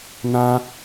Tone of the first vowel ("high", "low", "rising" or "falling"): high